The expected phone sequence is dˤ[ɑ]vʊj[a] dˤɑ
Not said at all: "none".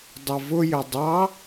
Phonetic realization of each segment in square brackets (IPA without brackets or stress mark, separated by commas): ʌ, ə